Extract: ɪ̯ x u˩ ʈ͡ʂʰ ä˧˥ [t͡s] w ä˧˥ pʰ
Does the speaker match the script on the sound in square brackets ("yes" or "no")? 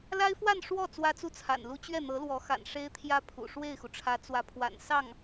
yes